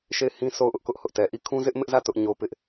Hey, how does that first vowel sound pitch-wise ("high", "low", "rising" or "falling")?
falling